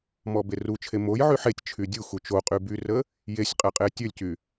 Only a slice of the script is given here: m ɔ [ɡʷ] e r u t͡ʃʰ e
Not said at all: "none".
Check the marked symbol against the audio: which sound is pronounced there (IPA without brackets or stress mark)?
b